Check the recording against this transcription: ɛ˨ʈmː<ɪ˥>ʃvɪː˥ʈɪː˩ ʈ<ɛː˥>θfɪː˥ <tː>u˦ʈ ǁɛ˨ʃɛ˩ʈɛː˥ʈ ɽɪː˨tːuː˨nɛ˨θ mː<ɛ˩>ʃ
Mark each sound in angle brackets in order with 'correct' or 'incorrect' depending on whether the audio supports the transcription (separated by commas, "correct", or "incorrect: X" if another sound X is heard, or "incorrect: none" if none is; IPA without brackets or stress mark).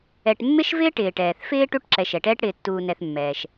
correct, incorrect: ɛː˩, incorrect: ʈ, incorrect: ɛː˩